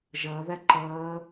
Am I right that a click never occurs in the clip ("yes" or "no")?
no